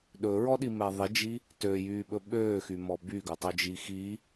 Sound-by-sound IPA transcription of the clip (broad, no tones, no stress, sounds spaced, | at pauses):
ɗ ɵ ɹ ɔ ɗ i m ɛ ðˤ i d͡ʒ i | t ø j yː ɓ ɵ ɓ øː x y m ɔ b y ɡ ɵ tˤ ø d͡ʒ i x i